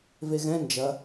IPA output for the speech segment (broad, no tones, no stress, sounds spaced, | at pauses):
v e ɣ ɛ̃ n d͡ʒ ɐ